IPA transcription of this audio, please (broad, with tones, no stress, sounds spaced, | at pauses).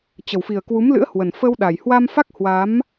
t͡ɕ ə˨˩ w f i˨˩ ə̯ k w u˨˦ m l ɨ̰˧˥ ə̯ h w ə˨˩ n f ə˧ w ɗ a˨˩ j h w a˧ m f a˦˥ k̚ h w a˨˦ m